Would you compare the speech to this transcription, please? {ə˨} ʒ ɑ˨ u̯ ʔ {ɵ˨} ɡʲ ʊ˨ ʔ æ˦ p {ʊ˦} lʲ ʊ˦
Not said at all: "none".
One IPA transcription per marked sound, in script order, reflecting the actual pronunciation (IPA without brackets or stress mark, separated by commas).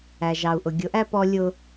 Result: æ˨, ʊ˨, ɔ˦